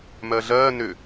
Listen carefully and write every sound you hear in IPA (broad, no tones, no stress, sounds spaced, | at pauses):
m ɜ ɮ ɜː n ʏ